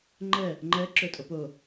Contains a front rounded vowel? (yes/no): no